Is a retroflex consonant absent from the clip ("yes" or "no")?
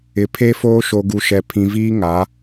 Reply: yes